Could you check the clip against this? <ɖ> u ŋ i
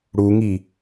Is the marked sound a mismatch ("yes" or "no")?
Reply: yes